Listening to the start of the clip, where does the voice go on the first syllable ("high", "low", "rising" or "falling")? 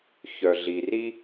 low